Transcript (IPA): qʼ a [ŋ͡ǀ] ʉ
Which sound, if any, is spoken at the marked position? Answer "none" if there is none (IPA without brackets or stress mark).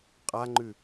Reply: ŋ͡ǃ